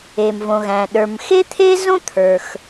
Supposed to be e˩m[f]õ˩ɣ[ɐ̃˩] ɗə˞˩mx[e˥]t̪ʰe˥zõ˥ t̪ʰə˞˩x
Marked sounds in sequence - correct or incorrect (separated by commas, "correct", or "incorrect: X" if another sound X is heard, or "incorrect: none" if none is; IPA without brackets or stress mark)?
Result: incorrect: v, incorrect: æ̃˩, correct